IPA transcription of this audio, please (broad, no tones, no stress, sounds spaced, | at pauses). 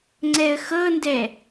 ŋ͡ǀ ɛ ə̯ x ɤ n d ɛ